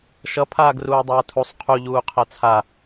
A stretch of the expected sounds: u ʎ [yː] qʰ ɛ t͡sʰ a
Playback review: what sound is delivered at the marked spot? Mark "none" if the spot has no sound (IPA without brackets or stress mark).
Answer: uː